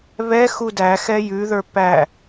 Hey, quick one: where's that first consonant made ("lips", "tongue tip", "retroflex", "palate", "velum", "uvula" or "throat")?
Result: lips